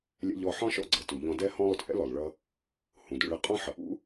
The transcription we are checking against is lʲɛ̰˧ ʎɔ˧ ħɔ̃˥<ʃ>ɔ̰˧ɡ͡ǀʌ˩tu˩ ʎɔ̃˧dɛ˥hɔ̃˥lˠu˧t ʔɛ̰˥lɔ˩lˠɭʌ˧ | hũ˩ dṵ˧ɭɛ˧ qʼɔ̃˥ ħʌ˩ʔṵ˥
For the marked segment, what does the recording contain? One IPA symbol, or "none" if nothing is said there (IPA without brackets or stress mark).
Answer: ʃ